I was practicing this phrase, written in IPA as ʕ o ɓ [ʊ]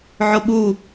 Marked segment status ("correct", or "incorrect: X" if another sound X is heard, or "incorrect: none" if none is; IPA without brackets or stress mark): incorrect: u